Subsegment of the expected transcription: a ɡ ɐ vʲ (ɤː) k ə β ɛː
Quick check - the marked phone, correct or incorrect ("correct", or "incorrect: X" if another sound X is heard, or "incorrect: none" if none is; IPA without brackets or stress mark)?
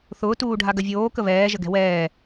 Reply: incorrect: oː